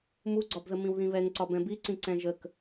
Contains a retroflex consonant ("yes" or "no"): no